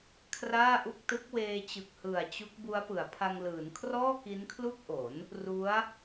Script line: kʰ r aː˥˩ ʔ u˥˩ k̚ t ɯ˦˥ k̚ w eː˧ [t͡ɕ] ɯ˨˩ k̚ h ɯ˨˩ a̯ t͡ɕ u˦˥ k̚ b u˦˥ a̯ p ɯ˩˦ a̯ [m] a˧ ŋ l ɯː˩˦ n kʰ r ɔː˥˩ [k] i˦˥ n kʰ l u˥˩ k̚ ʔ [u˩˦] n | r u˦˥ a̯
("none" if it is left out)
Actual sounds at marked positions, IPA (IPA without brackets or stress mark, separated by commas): t͡ɕ, pʰ, k, o˩˦